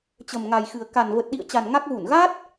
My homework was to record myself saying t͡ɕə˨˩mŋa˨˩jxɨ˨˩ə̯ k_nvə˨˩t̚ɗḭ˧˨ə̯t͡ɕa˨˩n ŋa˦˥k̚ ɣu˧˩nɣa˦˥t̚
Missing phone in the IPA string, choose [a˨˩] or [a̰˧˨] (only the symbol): a˨˩